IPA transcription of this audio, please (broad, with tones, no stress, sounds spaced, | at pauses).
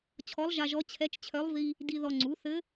t͡ɕʰ ɔ˧˥ lˠ ʒ a˧ ʒ ɔ˧˥ t͡ɕʰ ɛ˧˥ t͡ʃ t͡ɕʰ œ˧˥ lˠ v i˧ | d i˧ ð ɔ˧ ŋ͡ǀ u˩˥ θ ɘ˧˥